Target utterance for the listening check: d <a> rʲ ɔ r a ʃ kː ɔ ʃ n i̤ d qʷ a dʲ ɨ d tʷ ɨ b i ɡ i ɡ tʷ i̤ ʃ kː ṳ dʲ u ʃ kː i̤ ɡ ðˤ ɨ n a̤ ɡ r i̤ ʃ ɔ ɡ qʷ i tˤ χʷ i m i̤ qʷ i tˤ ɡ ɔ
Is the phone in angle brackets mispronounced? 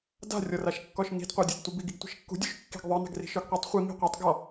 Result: yes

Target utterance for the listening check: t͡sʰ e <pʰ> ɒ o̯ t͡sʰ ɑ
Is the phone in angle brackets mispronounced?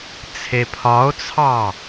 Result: no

